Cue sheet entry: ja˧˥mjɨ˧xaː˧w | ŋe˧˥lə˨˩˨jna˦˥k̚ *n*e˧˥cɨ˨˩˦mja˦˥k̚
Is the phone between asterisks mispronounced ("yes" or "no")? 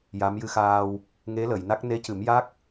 no